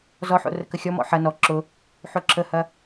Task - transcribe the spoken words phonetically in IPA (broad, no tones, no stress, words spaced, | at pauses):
zɔħo̰ rəkəxʲɔmɔ̰ ħɐ nɔ ǁʊ | ħoǁʰəhɐ